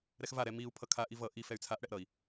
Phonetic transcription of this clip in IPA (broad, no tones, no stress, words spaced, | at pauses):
ɾɛxvaɾɛ miu̯ pʰʌkʰaʔi vʌ ʔi fɛy̯t͡sʰaʔɽɛʔ ɾʌi̯